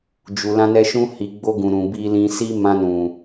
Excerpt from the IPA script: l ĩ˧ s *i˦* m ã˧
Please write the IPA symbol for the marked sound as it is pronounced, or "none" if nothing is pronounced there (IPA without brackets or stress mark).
i˦